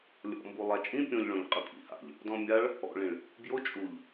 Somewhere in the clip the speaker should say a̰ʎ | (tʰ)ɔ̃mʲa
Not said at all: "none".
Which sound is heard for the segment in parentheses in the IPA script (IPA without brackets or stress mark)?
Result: d